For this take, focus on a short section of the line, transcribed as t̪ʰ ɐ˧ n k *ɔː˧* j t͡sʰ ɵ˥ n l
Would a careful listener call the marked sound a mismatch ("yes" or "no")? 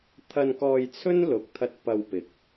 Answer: no